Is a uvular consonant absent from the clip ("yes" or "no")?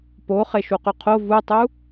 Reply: no